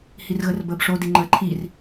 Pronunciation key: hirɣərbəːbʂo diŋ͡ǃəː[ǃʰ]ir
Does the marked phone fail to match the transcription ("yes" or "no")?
no